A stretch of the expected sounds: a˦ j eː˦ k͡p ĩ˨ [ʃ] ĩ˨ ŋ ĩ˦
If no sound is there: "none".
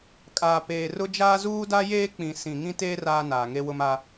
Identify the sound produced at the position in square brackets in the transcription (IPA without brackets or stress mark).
s